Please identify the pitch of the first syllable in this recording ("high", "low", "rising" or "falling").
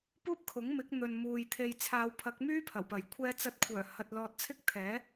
high